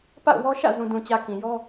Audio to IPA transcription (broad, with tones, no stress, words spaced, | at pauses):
pa̰˦˨ʊ̯wɔ˦ ʃä̰˦˨ zũ˨dũ˨t͡ɕä˨ kĩ˨jɔ˦